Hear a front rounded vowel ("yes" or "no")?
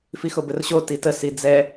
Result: no